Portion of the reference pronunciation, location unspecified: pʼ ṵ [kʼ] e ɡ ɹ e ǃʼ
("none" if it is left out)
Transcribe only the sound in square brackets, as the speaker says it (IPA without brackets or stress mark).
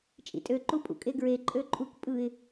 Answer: kʼ